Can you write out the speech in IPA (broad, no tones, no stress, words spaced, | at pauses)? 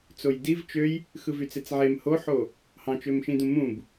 t͡sojdiv t͡ʃøj | xɯvyt͡set͡sʕem hoħo | hɑ̃t͡ʃømʃĩdũ mũb